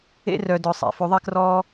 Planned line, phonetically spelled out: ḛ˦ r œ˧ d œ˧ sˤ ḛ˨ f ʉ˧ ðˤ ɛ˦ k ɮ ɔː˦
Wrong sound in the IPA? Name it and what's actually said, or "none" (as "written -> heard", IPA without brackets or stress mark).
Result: ɮ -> r